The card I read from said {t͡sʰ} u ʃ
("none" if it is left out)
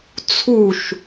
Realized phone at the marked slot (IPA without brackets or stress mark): t͡sʰ